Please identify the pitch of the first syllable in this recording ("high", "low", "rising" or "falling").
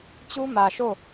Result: high